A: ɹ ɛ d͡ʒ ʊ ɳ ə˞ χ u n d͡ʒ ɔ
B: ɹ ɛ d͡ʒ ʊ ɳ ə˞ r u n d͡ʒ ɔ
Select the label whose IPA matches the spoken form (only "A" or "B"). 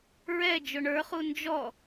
A